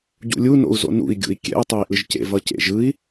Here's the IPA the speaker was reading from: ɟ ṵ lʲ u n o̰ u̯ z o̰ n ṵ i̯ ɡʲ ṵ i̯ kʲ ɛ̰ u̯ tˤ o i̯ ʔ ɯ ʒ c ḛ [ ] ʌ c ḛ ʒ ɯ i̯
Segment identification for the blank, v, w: v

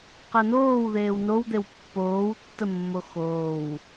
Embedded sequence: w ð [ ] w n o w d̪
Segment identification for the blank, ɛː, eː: eː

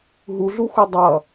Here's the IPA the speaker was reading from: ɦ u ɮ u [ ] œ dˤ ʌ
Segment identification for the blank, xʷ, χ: xʷ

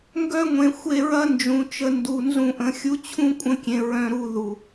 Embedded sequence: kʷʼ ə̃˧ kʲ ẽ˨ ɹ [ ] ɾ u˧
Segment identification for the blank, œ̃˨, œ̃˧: œ̃˧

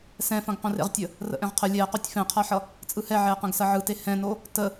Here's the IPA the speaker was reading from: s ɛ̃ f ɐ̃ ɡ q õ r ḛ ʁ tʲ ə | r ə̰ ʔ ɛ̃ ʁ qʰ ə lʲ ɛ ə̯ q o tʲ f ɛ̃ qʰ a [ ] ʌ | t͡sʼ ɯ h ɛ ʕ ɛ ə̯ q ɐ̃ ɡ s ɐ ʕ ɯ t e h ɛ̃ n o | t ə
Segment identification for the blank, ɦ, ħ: ħ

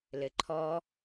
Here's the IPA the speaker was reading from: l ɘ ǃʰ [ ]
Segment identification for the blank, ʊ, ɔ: ɔ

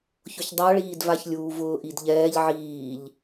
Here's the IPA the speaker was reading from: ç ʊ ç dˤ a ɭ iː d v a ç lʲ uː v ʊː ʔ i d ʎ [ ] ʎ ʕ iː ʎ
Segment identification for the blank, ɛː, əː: ɛː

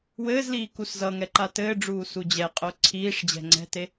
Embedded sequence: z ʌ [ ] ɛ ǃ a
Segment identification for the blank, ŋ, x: ŋ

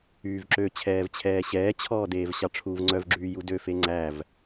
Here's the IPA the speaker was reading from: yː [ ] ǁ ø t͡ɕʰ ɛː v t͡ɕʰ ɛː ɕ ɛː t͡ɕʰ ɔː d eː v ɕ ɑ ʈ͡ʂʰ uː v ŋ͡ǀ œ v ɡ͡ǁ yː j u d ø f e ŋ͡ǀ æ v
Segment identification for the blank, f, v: v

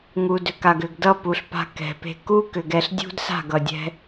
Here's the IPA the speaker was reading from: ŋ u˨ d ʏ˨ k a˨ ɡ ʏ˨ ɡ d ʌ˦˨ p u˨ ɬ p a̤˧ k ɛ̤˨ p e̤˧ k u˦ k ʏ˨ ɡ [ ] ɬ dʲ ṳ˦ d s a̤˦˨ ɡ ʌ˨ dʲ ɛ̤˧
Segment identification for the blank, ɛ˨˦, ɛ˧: ɛ˧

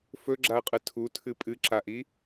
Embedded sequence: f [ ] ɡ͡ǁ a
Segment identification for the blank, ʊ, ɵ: ɵ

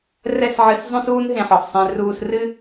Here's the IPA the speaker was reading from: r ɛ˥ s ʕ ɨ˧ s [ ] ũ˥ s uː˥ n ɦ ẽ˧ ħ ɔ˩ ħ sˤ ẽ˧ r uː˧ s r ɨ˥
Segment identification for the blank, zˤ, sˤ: zˤ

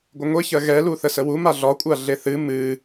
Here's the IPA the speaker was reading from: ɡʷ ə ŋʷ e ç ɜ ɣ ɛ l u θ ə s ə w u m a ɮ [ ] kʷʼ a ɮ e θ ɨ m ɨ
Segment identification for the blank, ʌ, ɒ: ɒ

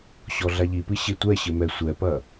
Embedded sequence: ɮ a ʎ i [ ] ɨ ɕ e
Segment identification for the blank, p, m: p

